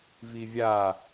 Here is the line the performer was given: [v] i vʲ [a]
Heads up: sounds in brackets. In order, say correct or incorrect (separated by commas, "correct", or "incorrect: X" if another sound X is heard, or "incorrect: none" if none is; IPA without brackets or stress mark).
correct, correct